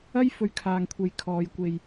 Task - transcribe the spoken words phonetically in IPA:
ɐ˥j fɵ˧ɥkʰaː˨ŋkʷʰe˨j kʰɔː˨jkʷe˨j

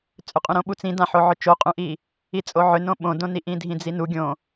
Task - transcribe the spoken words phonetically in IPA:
t͡sʼʏqʼũɾõɓut͡s ĩdãħo ʕʏt͡ʃoqʼũʔi | it͡sʼoʕʏnõ ɓõdõniʔ ĩdʱĩd͡zinu ɡʲõ

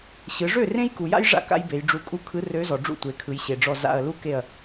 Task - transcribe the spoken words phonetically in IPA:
ɕɯ˩˧ʐø˥˩ rẽ˦jku˩ja̰˦j ʐa̰˦ ka̰˦jbe˩˧jɖ͡ʐu˧˩kʼu˦ kʰɯ˨˥rø˨˥zɔ˩ɖ͡ʐṵ˥˩ tʷe˩˧kʰɯ˩˧jɕe˩ɖ͡ʐɔ˧˩ za̰˧˩ɐ̯ lu˦ke˧˩ɐ̯

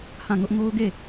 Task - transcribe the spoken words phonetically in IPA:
hã˦˨ŋʊ˦ʔ ŋo˦ʊ̯ɡe˦˨

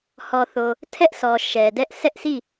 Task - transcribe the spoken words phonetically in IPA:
hɔ˨θo˨ | tʰɛ˦ʔsʰɔ˨ ʃɛ˨dɛ˦ʔ sɛ˦ʔsi˦˨

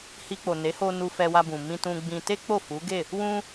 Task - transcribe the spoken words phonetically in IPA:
hi˧k͡po˨ ne˨˦ho˧ nu˧fɛ˧wa˧bũ˨ mĩ˧tũ˧ɡ͡bĩ˧ te˦ k͡po˦˨fu˨˦ɡe˦˨ | wũ˧

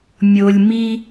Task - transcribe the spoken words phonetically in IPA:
mʲo˧lʲ mi˧

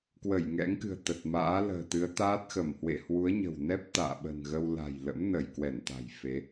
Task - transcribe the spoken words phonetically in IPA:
kwə˧˩jŋɛ̰˧˥ŋkɨ̤˨˩ə̯ t̪ə˨˩t̚ma̰ː˧˥lə̤ː˨˩ t̪ɨ˨˦ə̯t̪aː˦˥t̚xə˧˩m hwḛ˧˨hwu˨˦ə̯ɲə̤˨˩wnɛ˦˥p̚ t̪a̰ː˧˨ɓə̤˨˩nɣə˧wla̤˨˩j lə̰˧˥m nə˧˩jkwɛ˧˩nt̪a̤˨˩j fe˨˦

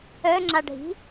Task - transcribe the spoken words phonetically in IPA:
œŋ͡ǁaɖʱi̤

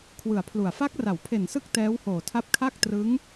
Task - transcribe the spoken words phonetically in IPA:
kʰwɯ˨˩a̯pʰlu˨˩a̯ fa˦˥k̚ra˩˦wpʰe˨˩nsɯ˦˥k̚ tɛː˦˥whoː˨˩tʰa˦˥p̚kʰa˥˩k̚ trɯ˦˥ŋ

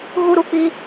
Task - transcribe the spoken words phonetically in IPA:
ɣu˦ɾu˦k͡pi˦

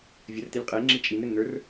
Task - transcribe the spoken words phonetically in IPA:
vʲərtelʲ qʼɘe̯ŋ͡ǁi t͡ʃʼinɾɘnn̪ə˞r

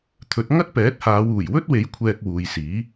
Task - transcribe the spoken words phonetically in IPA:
t̪ʰɵ˨˥t̚ ŋɐ˥t̚pɛː˨˥t̚haː˨˧w uː˨˩jwɵ˥t̚we˨˥j kʷʰɛː˧k̚wuː˨jsiː˨˥

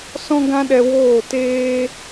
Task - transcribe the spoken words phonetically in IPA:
sɔ̃˦ɡã˦ɗɛ˧ woː˦˨teː˦

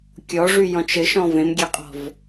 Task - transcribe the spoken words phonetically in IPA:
kʲɔʐyjɔ̃t͡ʃ ɘʃɔ̃ vẽmɡʲeqʼɔ̤v

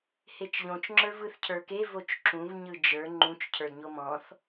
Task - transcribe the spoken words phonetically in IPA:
het͡ʃʎõt͡ʃ ŋ͡ǁə˞vɯθcʰə˞ke vot͡ʃǁũv ɲɯd͡ʒə˞ ŋ͡ǃũt͡ʃ cʰə˞dɲomɔ̃θ

